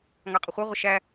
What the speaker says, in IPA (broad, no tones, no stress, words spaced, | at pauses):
ŋɑqʼəχʷɛ ʁʷəʃæ